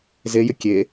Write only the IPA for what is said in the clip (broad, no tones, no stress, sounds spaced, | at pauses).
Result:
z e j ɪ kʲ e